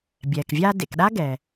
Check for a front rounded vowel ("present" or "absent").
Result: absent